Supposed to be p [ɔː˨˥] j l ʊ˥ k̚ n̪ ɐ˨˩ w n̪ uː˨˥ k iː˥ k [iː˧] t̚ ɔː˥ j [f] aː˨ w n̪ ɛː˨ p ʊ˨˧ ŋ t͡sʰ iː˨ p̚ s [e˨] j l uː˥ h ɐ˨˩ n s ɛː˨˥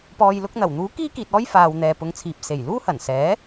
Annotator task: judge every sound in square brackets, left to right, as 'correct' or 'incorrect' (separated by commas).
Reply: incorrect, correct, correct, incorrect